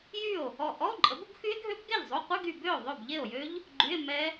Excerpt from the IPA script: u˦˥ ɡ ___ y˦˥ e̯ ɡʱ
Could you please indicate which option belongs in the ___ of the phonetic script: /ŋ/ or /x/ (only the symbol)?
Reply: x